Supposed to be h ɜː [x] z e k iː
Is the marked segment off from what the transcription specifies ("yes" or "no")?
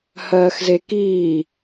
no